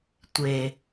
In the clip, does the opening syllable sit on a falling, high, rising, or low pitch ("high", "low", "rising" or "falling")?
low